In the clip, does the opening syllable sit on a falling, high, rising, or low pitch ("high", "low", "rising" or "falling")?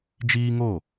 high